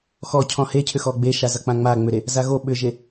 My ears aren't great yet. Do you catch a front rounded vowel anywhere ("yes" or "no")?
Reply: yes